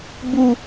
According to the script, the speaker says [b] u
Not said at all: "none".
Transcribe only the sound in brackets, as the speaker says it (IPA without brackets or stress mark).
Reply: b